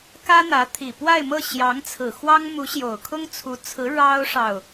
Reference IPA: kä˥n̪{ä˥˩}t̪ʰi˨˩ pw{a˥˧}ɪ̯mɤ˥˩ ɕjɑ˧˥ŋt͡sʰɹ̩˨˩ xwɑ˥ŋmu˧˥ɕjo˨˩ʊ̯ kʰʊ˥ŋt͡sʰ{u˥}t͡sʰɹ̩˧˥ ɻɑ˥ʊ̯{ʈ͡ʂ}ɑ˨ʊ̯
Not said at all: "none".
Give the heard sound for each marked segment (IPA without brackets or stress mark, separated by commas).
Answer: ä˧˥, a˥˧, u˧˥, ʂ